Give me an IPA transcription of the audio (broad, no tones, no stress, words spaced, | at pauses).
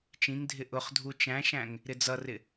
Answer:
t͡ʃĩŋdʱɪ ʔʊχdʱu t͡ʃæ̃ʃæ̃ŋ | ɾɪd͡zʌrɪ